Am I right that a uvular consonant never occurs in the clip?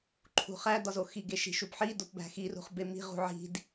no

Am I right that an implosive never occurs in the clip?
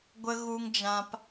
yes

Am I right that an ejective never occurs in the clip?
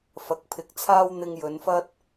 yes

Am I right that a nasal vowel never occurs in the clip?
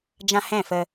no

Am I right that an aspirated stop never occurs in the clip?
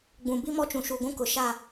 yes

